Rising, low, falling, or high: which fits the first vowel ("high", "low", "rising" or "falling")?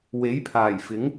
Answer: rising